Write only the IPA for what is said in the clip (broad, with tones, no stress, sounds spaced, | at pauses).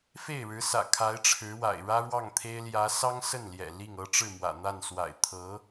f e˥˩ ɪ̯ ɻ ɻ̩˧˥ s ä̰˨˩ kʰ a˧˥ ɪ̯ ʈ͡ʂʰ ɻ̩˧˥ w a̰˨˩ ɪ̯ ɻ ä˥ ɻ w ɑ˥˩ ŋ t̪ʰ e˥ ɪ̯ l j ä˧˥ s ɑ˥ ŋ s ə˥˩ n l j ɛ̰˨˩ l i˥˩ ŋ ɤ˥ ʈ͡ʂ ɻ̩˥˩ m w ä̰˨˩ n̪ a˥˩ n s w a̰˨˩ ɪ̯ t̪ʰ ɤ˧˥